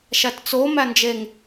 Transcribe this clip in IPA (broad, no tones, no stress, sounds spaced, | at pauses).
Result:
ʃ æ t t͡s o m æ n d͡ʒ e ŋ